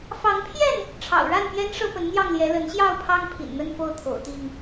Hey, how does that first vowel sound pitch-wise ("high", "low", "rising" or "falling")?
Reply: rising